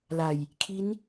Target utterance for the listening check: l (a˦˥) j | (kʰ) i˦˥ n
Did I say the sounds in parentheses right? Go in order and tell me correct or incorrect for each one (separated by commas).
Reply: incorrect, correct